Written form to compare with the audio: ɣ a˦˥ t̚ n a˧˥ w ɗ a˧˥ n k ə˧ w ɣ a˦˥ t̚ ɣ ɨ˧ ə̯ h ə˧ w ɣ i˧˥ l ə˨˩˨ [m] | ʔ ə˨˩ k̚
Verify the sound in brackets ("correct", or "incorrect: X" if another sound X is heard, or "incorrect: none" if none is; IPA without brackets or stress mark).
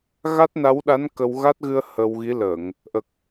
incorrect: ŋ